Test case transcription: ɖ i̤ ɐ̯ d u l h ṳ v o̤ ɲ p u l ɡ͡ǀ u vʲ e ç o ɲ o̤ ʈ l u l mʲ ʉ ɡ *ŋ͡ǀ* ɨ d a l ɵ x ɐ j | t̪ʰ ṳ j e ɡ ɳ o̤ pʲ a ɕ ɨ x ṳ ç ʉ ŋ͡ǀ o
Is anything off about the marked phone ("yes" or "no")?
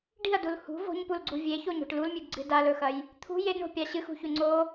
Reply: yes